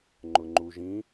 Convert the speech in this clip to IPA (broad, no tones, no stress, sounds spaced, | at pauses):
ŋ͡ǃ ʊ ŋ͡ǃ u ʒ ĩ